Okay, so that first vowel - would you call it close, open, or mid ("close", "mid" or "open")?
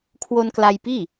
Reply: mid